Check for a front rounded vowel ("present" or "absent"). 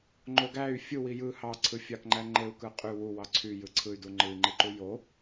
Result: present